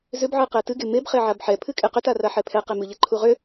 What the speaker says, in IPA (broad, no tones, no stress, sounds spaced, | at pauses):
z ʏ b ʕ ɨ q ɛ t ɨ ɡ e m e b χ e ʕ a b ħ ɛ pʰ ɨ kʼ e q ʏ t a r a ħ ɛ pʰ ɛ q e m ɨ ʎ e ǃʰ u ʁ ʏ